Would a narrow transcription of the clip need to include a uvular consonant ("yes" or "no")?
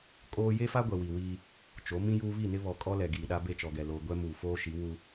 no